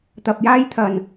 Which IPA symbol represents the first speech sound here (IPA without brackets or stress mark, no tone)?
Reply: t̪